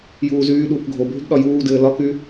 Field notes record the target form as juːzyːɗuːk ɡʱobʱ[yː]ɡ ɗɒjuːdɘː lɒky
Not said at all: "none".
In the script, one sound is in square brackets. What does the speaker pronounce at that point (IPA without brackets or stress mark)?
y